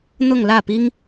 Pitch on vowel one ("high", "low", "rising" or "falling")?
falling